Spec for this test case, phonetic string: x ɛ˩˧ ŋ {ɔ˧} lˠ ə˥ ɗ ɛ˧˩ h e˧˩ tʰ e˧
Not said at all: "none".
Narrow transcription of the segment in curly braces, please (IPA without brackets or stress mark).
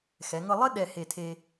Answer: ɤ˧